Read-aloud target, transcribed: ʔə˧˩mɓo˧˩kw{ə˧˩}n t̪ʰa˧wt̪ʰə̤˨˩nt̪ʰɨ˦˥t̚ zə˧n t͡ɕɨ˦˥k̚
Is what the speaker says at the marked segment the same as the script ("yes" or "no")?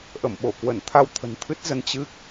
yes